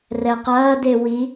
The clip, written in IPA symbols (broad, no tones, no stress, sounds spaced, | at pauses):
r ɛ q ɐː d e w i